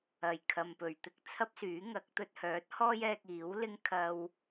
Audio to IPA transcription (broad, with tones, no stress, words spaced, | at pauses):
ɐ˨˩jkʰɐ˨mpɵ˨˩ɥt̪ɪ˥k̚ t͡sʰɐ˥p̚syː˨˥ŋɐ˨˥k̚ t̪ɵ˧t̚hœː˨˥t̚hɔː˥jɛː˧k̚ iː˨˥wlɪ˥ŋ kʰɐ˥w